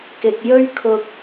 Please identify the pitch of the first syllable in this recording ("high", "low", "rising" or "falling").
low